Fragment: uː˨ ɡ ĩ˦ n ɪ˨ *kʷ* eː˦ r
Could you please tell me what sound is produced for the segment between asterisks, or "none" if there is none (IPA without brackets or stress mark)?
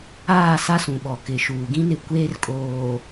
kʷ